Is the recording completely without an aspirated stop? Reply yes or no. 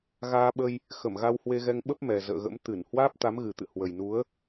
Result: yes